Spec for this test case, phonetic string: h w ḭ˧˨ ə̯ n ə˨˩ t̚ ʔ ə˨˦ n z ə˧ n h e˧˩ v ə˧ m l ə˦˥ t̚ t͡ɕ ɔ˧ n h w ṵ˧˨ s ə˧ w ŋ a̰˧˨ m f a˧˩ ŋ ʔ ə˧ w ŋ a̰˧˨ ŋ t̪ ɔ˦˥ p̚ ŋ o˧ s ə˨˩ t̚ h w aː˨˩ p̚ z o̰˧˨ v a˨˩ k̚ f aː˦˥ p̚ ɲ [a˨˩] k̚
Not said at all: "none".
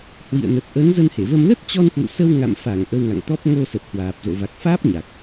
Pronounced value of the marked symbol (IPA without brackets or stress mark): a˨˩